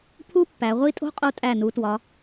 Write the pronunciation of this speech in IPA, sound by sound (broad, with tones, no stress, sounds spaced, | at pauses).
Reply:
pʰ u˥ pː æ˩˧ ʁʷ i˥˧ tʼ o̤˥ qʼ o˧ tʼ æ˧˩ n u˩˧ t w ɒ˩˧